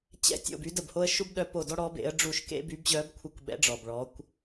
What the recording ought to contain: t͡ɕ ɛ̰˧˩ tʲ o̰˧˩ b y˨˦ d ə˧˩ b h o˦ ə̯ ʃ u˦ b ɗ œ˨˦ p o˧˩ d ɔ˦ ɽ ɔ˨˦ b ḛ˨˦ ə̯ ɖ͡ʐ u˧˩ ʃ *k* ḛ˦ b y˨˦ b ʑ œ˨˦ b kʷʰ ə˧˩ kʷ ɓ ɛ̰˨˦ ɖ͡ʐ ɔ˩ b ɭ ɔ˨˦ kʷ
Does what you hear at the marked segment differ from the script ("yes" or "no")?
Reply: no